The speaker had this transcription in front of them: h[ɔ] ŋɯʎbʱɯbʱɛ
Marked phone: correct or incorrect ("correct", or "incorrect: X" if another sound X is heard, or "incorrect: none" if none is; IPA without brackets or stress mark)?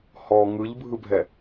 correct